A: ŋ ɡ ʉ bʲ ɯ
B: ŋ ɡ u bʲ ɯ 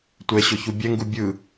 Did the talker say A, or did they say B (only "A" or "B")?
B